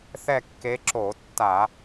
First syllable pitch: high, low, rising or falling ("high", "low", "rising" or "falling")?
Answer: falling